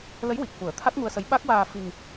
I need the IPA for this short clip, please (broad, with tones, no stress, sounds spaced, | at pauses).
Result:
l ə˧˥ j w i˨˩ k̚ f u˨˩˦ ə̯ t̪ʰ a˦˥ t̚ ŋ u˧ ə̯ s ə˧˥ j ɓ a˦˥ k̚ w aː˧ f i˧ ŋ